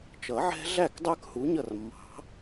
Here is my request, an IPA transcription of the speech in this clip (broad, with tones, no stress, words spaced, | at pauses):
t͡ʃʌ˨˩˦ʕɛ̤˦ɮæ˥˩kdˤə˞˦k hu˩˥ɲʌ˥˩r mːɑ̤˨˩˦